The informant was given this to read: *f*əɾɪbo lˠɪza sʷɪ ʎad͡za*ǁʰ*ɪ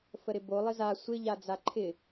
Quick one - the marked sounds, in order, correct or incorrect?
correct, incorrect

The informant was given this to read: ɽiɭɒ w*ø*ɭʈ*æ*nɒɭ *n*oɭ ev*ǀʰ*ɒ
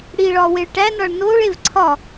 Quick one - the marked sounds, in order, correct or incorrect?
incorrect, correct, correct, correct

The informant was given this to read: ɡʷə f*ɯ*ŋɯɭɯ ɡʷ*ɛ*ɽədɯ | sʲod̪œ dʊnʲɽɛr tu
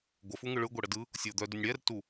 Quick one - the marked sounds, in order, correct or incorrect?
incorrect, correct

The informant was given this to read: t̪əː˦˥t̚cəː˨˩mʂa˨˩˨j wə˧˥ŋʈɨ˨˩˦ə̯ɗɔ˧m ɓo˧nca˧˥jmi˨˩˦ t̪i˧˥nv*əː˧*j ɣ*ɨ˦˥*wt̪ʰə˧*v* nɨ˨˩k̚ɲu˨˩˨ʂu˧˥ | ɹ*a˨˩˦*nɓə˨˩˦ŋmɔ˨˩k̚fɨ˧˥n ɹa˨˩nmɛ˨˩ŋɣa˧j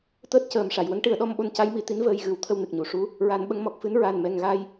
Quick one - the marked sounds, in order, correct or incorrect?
correct, incorrect, incorrect, correct

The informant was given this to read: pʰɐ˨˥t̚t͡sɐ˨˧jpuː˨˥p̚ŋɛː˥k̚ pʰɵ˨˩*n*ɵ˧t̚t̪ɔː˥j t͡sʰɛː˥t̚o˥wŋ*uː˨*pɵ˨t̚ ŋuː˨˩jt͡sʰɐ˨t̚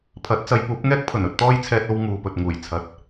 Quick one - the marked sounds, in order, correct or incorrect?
correct, correct

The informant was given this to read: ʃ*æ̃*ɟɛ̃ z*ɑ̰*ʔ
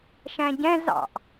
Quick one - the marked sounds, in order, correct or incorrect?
correct, correct

